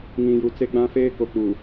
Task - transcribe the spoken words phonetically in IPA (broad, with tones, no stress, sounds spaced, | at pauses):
ŋ ĩ˨ j u˨ t͡s e˦ ɡ͡b ã˦ f eː˦ k o˨ k͡p u˨